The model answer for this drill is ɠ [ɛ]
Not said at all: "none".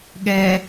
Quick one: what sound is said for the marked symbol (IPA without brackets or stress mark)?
ɛ